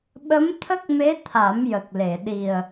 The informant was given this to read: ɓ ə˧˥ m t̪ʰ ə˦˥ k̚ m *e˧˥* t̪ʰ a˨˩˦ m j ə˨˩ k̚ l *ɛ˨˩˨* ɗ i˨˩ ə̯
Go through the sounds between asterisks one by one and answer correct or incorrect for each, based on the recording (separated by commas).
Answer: correct, incorrect